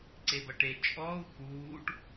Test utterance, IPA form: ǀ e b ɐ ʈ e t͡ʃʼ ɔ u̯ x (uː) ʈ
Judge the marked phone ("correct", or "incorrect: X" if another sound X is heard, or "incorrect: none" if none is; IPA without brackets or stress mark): correct